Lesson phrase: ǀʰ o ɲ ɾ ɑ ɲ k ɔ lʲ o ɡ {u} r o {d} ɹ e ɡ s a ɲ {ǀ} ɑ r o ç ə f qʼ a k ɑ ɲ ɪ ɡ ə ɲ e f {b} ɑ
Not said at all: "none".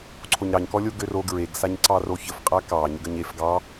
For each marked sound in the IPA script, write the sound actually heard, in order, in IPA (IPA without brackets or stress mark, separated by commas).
ø, ɡ, ǀ, ɡ